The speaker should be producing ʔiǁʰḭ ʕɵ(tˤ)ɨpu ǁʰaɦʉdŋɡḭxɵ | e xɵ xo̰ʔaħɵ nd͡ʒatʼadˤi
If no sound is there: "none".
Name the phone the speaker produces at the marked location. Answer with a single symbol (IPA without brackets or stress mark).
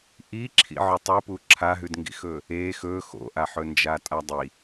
tˤ